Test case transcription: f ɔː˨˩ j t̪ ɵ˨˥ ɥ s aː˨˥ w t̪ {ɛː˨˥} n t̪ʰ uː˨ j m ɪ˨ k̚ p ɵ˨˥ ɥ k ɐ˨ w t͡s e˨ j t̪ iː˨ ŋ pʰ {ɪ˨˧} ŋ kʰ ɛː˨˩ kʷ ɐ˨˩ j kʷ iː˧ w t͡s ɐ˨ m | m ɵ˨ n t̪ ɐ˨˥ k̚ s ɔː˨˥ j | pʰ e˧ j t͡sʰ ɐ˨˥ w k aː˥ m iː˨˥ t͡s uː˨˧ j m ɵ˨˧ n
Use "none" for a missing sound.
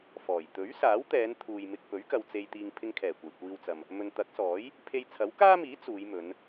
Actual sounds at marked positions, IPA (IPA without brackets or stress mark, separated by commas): ɛː˨˧, ɪ˧